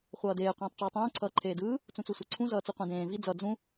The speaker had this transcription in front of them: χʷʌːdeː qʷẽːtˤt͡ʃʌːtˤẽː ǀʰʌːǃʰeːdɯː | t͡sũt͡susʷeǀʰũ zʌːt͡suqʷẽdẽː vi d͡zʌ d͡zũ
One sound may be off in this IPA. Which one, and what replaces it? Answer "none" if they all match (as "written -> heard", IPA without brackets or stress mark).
none